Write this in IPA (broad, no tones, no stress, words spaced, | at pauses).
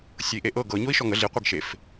sʲɤi̯ʔeʔɤ ɡɤ ɲoi̯ʃɔŋə ɮi qʷiɡʃef